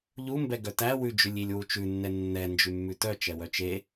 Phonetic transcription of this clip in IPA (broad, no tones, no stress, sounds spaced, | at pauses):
ʎ u m b ɛ ɡ œ t æ w ʉ d͡ʒ ʉ lʲ i lʲ w u t͡ʃ ʉ nː ɛ nː ɛ n d͡ʒ ʉ mː ʉ t œ t͡ʃ ɛ w œ t͡ʃ e